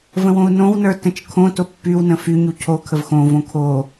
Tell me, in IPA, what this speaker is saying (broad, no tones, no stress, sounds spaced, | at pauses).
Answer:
v ə̃ w õ u̯ n õ w n ə˞ t ə̃ t͡ʃ kʰ õ t o pː y w n ə̃ f y ɲ u cʰ o kʰ ə v x õ v õ kʰ o